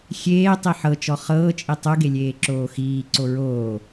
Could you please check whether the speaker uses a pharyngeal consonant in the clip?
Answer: yes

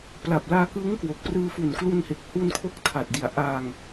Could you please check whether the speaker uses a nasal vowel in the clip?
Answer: no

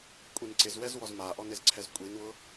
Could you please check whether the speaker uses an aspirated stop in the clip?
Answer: yes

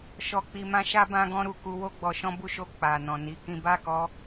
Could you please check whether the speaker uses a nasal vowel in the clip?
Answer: yes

